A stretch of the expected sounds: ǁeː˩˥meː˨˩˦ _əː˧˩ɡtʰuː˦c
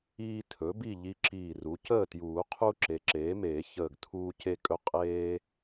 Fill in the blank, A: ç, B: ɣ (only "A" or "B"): A